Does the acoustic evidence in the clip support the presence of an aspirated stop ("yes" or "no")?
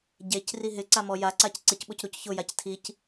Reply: yes